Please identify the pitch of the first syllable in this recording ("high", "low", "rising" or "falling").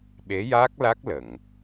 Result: rising